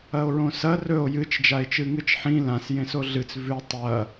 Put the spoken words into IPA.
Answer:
ɐo̯ɹõsɐ rɵo̯ jɨt͡ʃ d͡ʒae̯t͡ʃɨŋɨt͡ʃħĩ lãs jẽsoɮɨt͡s vʉ tˤɐ

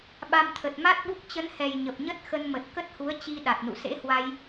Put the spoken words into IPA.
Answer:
ɓa˧mt̪ʰə˨˩t̚ ma˦˥t̚ɓu˦˥k̚ t͡ɕə˨˦nhɛ˨˩j ɲə˨˩p̚ɲə˦˥t̚ xə˧nmə˨˩t̚ kə˦˥t̚hu˨˦ə̯t͡ɕi˧ ɗa˨˩t̚nṵ˧˨ sḛ˧˥hwa˧j

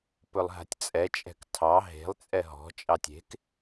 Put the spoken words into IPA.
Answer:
pɵlˠɦa̤tʲt͡sʼɛt͡ʃʼɛ̤k tʰɑ ɦe̤lˠ t͡sʼɛɦɔ̤t͡ʃʼɑtʲ e̤k

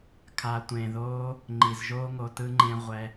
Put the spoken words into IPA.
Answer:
kʰa˨tʷẽ˨ðoː˧ | ŋ͡ǃi˨zʒoː˦ŋo˧ tɯ˧ŋ͡ǃẽ˧ ʁʷɛ˧

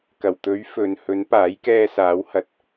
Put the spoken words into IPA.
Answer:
kɐ˨˩wt̪ɵ˨˥ɥfɵ˨n hɵ˨˥n paː˨˥jkɛː˧saː˨˥whɐ˨t̚

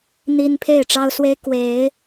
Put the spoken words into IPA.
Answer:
n̪i˦n pʰe˥˨ɪ̯ʈ͡ʂɑ˦ʊ̯swe˦ɪ̯ kwe˨˦ɪ̯

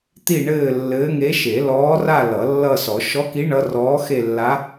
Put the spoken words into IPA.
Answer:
t̪i˥˧ɳɘː˥˧ lːɘː˧˥ŋe˧˥ ʃe˨˩˦lɔː˧˥ra˥˧ lʌ˨˩˦lːʌ˥˧sɔ˨˩˦ ʃɔ˧˥ki˧˥ ɳʌ˧˥rɔː˧˥ xe˥˧lːa˧˥

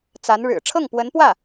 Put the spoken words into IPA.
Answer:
t͡sa˧˥nɻɻ̩˨˩ ʈ͡ʂʰɤ˥˩ŋpwə˧˥npwä˥˩

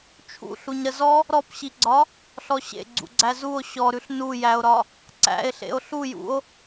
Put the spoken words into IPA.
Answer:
t͡ʃʰṵ ɬuɲɾəzɔ | ɾɔpɕiɡ͡ǀɒ | ɬɔɕḛ ɡ͡ǀṵɡ͡ǀæzuo̯ ɕɔɾʉɬ nujæo̯ɾɒ | ǀæ̰e̯ɬḛo̯ ɬujṵo̯

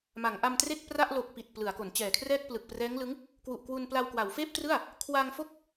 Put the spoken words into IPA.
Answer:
ma˩˦ŋʔa˧mtre˥˩k̚pra˥˩ʔ lo˨˩k̚ pi˨˩t̚ plɯ˩˦a̯ko˩˦nt͡ɕɛː˨˩kʰrɛː˥˩k̚ plɯ˨˩k̚prɛː˦˥ŋlɯ˦˥ŋ | kwu˨˩ʔkwu˧npla˧w kwa˩˦wfeː˥˩p̚trɯ˥˩a̯ | kʰwa˧ŋfo˥˩k̚

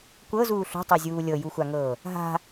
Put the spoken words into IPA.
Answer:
kʷɤzuː ɬo̤tˤɤzʲuː lʲɤjuxʷaŋɤː | ɦa̤

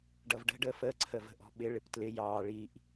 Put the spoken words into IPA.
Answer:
ɖʌvɖə̤ ɖəːfəː ǀʰəvə̤ʔɔ̤ɓɪ ɭɪptlɪ jɑː ɭiʔ

